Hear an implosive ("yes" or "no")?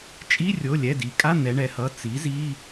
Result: no